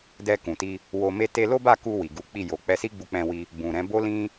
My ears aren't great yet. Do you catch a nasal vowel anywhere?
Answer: yes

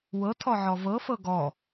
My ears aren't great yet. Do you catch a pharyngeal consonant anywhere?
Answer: yes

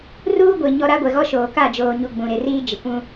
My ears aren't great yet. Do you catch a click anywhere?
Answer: no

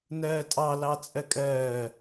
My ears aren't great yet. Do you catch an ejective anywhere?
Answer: yes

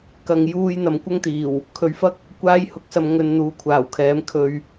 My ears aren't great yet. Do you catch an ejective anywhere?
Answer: no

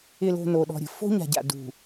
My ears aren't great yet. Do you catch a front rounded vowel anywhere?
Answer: no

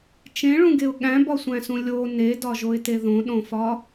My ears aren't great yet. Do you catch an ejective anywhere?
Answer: no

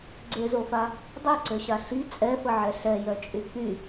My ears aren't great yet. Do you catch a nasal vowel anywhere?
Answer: no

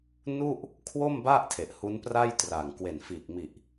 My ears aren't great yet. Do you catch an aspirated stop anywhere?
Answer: yes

